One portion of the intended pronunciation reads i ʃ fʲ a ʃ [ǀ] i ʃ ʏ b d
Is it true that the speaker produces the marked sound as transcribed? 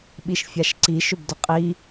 yes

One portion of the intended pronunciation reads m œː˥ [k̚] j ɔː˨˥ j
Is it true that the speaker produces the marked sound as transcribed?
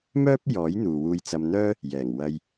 no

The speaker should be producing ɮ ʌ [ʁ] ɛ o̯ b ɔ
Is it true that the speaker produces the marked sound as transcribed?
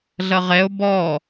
yes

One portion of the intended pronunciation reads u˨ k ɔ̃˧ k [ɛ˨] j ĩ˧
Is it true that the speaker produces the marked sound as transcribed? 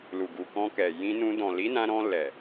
yes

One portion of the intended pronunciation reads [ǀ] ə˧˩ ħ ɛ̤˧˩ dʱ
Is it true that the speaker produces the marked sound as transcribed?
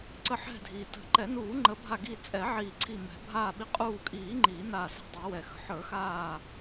yes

